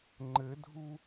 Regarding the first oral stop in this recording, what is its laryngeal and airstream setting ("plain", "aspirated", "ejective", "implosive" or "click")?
click